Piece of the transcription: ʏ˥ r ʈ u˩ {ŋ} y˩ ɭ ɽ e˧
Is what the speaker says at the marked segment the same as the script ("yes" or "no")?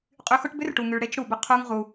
yes